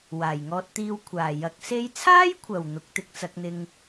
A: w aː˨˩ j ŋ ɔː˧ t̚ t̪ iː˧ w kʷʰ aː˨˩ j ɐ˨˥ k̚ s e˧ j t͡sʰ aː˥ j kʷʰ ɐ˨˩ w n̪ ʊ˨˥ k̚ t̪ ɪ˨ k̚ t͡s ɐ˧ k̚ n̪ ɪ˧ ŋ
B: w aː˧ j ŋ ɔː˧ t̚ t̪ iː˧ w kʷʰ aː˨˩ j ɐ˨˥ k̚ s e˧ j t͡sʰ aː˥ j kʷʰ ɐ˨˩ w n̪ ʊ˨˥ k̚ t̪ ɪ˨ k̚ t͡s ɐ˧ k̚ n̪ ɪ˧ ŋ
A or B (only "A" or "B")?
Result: A